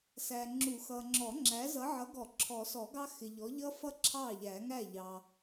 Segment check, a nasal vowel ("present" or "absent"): absent